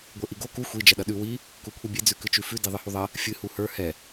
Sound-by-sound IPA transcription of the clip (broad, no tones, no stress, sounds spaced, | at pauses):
ɡʷ ə˞ ʔ i ɡ o k u xʷ i d͡ʒ ɐ ɗ ɐ ɗ ʉ w i | k u kʷʰ i bʲ e d͡z ʉ k ɨ t͡ʃ ʉ f ʉ d i ðˤ ɨ h u ðˤ ɐ | fʲ ɨ h u h ə˞ h ɛ